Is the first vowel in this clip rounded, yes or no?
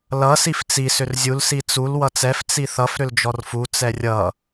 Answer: no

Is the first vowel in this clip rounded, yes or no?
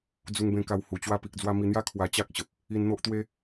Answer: yes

